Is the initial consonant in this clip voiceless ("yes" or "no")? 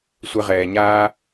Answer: yes